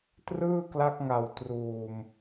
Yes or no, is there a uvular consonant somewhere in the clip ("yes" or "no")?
no